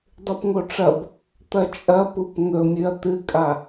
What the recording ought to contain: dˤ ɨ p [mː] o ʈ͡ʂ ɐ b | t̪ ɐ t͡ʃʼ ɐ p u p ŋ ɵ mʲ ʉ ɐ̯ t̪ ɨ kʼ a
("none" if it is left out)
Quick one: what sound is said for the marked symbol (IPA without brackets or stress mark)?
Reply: ŋ